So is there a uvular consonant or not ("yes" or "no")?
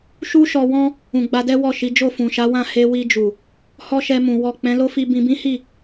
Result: no